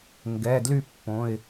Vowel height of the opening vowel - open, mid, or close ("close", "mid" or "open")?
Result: mid